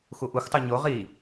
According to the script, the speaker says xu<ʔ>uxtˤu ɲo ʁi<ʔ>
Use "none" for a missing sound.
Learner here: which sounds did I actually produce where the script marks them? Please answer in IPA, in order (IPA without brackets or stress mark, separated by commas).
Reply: ʔ, none